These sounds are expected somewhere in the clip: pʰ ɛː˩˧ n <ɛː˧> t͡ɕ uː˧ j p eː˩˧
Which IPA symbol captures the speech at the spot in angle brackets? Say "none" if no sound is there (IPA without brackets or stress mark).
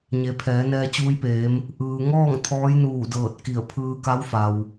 ɛː˧